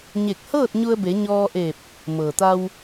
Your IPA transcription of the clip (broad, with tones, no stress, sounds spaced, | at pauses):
ɲ e˧˩ k̚ h ɤː˥˨ t̚ ɲ u˧ ə̯ b e˩˧ ɲ ɔː˧ ʔ e˧˩ p̚ | m ɤː˩ t̪ a˧ w